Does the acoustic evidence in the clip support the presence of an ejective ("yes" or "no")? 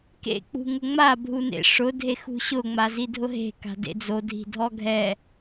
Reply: no